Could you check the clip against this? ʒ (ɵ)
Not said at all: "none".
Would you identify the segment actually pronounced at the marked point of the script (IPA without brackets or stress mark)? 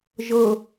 ɤ